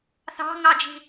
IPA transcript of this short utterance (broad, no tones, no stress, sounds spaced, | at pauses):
θ ɑ̤ ŋ ɑ d͡ʒ i̤